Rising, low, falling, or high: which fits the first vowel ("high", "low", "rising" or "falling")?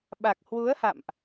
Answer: low